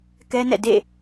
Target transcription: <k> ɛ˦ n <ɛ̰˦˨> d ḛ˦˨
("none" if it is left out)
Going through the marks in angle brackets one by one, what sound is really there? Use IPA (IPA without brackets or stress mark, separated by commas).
k, ɛ̰˦˨